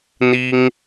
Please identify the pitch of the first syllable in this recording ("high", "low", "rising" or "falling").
high